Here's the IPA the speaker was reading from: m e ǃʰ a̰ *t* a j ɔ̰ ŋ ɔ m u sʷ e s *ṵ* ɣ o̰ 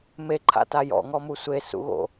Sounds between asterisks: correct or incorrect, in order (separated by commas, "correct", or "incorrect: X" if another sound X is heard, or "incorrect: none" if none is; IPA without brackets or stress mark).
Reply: correct, correct